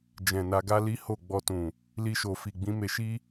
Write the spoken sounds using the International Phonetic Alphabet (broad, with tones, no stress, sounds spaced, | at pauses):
d͡ʒ ɛ̃˨ n a˧ ɡ a˦ l i˦ h o˦˨ ɡ͡b ɔ˧ t ũ˨ | l i˧ ʃ o˨ f i˨ ɡ͡b ĩ˨˦ m e˧ ʃ i˦